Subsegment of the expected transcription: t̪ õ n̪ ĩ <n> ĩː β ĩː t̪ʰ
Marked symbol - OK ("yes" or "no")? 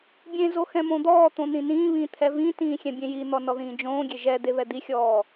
yes